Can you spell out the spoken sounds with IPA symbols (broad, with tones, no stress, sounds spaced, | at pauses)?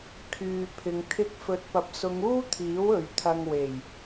kʰ yː˨ pʰ ɪ˨ ŋ t̪ʰ ɪ˧ k̚ f ɵ˨˥ t̚ p ɐ˨˥ p̚ s ʊ˨˧ ŋ uː˥ t̪ʰ iː˨˥ w ɵ˨ ɥ t̪ʰ ɐ˧ ŋ w e˨˩ j